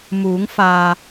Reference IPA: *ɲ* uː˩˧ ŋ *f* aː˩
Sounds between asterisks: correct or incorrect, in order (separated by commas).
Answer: incorrect, correct